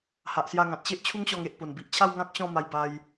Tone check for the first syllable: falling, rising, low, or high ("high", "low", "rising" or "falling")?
low